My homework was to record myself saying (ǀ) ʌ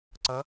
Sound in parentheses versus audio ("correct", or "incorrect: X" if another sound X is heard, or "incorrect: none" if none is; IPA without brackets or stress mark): correct